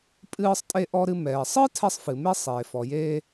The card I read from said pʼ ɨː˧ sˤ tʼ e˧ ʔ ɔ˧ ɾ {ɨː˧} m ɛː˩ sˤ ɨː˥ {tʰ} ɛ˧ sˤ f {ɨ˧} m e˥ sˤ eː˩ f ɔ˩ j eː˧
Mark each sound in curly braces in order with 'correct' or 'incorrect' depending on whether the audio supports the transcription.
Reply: incorrect: ɨ˧, correct, incorrect: ɨ˩

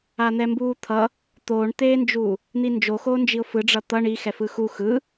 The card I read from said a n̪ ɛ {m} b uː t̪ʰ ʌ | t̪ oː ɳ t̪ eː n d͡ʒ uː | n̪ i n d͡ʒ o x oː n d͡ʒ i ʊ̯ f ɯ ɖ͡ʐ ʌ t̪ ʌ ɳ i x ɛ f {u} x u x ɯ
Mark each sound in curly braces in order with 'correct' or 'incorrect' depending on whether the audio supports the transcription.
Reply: correct, incorrect: ɯ

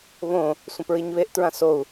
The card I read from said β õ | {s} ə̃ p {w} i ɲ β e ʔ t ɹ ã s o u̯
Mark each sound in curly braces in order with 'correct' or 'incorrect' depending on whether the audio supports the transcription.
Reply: incorrect: sʷ, incorrect: ɹ

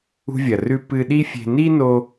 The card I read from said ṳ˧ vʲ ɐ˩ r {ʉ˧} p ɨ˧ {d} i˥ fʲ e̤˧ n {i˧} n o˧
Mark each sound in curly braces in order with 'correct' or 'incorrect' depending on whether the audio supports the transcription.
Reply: correct, incorrect: ɗ, incorrect: i˥

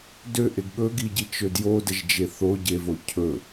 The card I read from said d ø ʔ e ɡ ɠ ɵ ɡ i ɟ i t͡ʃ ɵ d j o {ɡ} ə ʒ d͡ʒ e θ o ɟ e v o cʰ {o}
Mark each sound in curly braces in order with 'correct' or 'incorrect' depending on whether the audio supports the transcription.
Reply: incorrect: d, incorrect: ɵ

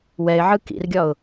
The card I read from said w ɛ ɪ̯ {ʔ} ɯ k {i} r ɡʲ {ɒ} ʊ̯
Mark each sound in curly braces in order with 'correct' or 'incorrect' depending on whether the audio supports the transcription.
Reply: incorrect: ʕ, incorrect: ḭ, correct

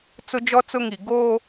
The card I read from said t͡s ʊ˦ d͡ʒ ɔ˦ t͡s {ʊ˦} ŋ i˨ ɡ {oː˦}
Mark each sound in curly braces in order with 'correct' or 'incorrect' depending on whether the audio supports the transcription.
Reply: correct, correct

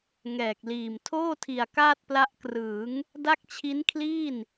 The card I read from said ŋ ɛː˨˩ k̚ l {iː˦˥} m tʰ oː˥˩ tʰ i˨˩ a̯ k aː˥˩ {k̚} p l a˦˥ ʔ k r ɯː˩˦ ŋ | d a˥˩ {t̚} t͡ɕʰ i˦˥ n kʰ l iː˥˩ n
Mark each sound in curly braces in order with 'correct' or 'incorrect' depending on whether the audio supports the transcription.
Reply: incorrect: iː˨˩, incorrect: t̚, incorrect: k̚

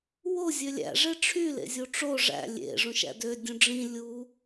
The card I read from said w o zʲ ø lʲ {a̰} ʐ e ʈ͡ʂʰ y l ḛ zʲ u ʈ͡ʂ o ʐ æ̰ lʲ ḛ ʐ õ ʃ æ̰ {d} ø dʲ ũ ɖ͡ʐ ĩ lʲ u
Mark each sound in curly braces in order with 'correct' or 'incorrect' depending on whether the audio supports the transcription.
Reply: incorrect: æ̰, correct

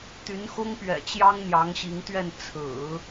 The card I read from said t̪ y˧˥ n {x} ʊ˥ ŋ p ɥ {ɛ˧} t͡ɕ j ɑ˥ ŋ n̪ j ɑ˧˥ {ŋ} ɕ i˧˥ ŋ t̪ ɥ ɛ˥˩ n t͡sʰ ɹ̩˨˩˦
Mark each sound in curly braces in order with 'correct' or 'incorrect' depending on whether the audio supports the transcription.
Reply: correct, incorrect: ɛ̰˨˩, correct

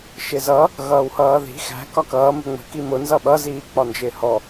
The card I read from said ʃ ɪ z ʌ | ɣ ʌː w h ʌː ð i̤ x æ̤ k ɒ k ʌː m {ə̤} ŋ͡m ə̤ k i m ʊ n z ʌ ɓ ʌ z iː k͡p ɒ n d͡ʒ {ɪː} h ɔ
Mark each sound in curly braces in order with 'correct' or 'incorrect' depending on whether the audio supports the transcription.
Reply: correct, correct

